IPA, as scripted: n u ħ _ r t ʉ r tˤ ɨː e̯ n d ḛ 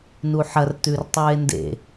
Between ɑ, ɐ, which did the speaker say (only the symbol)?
ɐ